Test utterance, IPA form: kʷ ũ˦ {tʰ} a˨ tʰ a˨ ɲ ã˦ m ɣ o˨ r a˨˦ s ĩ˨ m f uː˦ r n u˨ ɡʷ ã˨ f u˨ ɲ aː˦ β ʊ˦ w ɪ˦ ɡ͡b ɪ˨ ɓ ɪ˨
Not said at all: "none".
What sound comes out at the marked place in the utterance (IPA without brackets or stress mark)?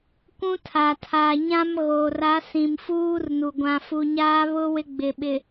tʰ